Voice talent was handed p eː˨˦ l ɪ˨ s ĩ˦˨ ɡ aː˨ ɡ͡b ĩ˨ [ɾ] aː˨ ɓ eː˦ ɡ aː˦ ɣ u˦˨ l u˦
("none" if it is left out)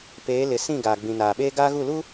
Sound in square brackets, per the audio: n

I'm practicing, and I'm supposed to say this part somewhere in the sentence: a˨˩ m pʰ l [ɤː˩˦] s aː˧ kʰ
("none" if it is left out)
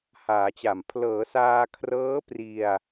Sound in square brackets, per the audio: ɤː˩˦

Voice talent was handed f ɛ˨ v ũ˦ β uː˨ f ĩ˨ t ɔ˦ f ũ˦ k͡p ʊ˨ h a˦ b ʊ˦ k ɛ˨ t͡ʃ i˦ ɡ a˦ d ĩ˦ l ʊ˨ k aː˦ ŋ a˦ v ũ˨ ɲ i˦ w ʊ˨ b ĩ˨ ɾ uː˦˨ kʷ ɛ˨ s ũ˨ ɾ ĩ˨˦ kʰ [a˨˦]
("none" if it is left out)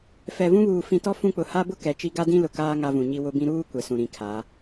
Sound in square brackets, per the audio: a˨˦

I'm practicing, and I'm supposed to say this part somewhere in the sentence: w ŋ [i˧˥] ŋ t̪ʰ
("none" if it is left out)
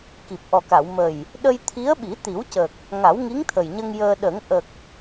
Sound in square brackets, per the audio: i˧˥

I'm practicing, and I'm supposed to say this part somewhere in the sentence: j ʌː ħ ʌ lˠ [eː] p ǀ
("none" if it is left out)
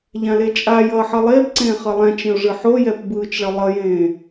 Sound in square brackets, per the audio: eː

